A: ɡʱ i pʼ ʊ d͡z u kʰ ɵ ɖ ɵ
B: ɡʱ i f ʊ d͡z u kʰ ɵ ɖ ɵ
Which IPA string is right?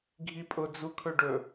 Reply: A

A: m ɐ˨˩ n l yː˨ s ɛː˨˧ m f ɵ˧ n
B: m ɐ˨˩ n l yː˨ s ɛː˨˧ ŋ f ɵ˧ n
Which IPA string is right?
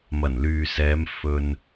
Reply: A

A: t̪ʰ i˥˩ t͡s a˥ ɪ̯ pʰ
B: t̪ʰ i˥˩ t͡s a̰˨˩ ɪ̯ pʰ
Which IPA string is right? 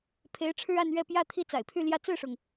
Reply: B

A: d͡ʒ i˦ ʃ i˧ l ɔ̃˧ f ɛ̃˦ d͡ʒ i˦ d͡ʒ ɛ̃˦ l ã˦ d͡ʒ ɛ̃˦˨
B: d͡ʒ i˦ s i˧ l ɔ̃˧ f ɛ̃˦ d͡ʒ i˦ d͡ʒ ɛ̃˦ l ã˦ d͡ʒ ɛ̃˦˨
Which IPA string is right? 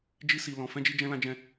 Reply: B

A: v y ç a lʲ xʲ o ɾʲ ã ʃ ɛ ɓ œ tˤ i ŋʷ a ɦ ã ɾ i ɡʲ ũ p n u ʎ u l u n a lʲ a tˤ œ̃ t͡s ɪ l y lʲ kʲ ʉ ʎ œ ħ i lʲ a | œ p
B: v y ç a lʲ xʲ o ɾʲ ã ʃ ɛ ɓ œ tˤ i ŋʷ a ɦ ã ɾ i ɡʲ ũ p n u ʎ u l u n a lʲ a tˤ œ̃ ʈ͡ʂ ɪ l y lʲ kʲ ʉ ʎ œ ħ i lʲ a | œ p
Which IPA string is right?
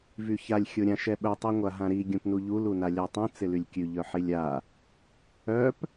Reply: A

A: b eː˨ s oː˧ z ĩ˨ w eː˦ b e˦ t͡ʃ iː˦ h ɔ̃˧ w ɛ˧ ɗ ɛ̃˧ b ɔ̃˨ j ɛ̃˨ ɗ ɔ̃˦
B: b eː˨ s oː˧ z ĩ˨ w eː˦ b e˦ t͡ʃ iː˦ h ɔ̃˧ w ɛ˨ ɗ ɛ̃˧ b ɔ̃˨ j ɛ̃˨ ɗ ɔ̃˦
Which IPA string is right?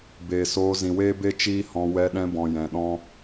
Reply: A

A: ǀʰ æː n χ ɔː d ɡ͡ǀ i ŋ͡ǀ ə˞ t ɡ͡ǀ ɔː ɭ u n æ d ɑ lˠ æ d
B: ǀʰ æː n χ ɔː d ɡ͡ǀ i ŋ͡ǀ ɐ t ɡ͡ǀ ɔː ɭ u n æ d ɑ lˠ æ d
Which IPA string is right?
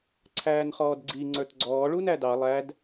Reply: A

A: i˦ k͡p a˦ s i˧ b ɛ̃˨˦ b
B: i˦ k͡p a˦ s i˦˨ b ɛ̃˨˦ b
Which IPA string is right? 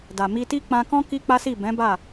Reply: B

